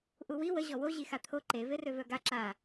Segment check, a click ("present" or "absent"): present